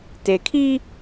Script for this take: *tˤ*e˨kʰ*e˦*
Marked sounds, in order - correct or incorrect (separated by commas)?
incorrect, incorrect